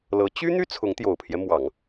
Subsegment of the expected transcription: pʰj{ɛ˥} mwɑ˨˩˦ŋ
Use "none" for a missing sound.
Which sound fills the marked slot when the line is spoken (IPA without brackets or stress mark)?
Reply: ɛ˦